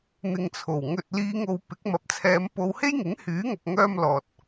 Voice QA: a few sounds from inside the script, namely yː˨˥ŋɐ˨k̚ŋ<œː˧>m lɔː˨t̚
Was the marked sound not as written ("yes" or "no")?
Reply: no